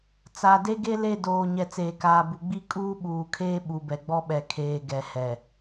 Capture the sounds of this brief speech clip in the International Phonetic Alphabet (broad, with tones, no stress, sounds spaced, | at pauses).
t͡s a˨ d e˦ ɡ e˦ l e˦˨ d oː˨ ɲ ɛ˨ t͡s eː˨ k aː˨ b u˨ ɡ͡b i˦ kʼ uː˦ ɓ uː˨ kʰ eː˦ ɓ u˨ b ɛ˨ ɡ͡b ɔ˦ ɓ ɛ˨ kʰ eː˨ ɡ ɛ˨ h ɛ˨